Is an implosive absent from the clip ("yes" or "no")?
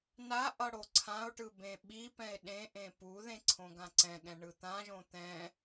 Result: no